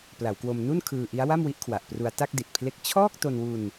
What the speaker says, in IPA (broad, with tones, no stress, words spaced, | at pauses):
pla˩˦wkwo˧mnu˥˩nkʰɯː˧ ʔi˦˥a̯wa˥˩mwi˦˥ʔkʰwa˨˩ʔ pru˧a̯ta˥˩k̚di˨˩t̚pʰle˦˥k̚ t͡ɕʰɔː˥˩k̚to˧nwu˧n